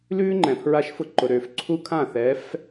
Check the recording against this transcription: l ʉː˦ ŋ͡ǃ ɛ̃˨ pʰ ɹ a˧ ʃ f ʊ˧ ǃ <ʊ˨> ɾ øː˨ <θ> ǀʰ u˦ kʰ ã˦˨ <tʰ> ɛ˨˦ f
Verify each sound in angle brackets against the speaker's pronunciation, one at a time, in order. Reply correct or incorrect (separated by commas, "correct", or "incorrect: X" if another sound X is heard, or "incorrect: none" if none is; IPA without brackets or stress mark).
correct, incorrect: f, incorrect: θ